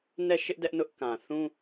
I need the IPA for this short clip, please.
n ɛ˦˨ ʃ ɪ˦ ʔ d ɛ˦ ʔ n ʊ˦ ʔ k ã˨ θ ũ˦

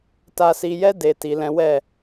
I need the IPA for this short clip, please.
t a˧ s i˧ j ɛ˦ d e˧ t i˨ l ɛ̃˨˦ w ɛ˦˨

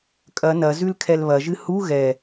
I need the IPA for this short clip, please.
kʼ ɐ n ɐ z ʉ l kʰ ɛ l β ɐ ʒ ɨ h u ɣ ɛ

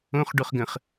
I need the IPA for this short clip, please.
õ χ ɖ o χ ɡ ə̃ χ

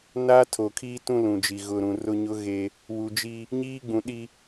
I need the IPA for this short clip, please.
n aː˦ tʰ o˨ kʰ iː˦ t ũ˦ l ũ˨ d͡ʒ i˨ ɣ ʊ˨ ɾ ũ˨ r ʊ˦ ɲ ʊ˦ ɣ e˦ | w u˨ d͡ʒ i˦ | ɲ iː˦ ɡ͡b ũ˨ ɗ i˦

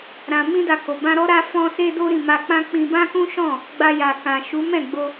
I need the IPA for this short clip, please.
ɾ ã˨ m ĩ˧ d a˨ k o˨ b ã˧ ɾ ɔ˦ ɾ a˧ f ɔ̃˧ s e˦ d o˦ ɾ ĩ˦˨ m a˧ k͡p ã˦ k͡p ĩ˧ b ã˦ k ũ˦ ʃ ɔ̃˦˨ | ɡ͡b a˧ j a˨ k ã˨ ʃ u˨˦ m ɛ̃˦˨ ɡ͡b o˧

